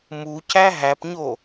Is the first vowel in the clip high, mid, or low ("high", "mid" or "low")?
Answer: high